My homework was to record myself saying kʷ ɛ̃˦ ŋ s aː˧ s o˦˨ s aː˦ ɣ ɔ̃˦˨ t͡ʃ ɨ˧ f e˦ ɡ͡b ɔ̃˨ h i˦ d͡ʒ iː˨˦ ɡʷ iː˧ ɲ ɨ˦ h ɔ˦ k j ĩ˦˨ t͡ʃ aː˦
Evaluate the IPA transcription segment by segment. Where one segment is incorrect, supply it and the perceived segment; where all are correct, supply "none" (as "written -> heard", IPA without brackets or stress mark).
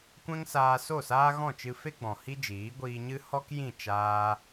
none